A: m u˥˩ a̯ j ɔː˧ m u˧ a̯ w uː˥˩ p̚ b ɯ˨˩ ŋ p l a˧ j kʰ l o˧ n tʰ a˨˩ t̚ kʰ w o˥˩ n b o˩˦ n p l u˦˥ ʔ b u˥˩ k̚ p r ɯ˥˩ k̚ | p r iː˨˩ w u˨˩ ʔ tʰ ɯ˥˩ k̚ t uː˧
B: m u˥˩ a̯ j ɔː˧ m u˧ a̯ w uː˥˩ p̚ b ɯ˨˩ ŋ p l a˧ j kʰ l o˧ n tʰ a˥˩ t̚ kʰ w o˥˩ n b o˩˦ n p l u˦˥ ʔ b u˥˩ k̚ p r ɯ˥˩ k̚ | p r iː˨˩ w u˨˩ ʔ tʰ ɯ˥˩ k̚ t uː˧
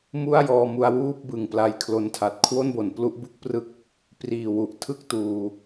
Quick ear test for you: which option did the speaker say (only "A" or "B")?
A